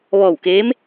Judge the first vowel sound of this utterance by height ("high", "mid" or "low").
mid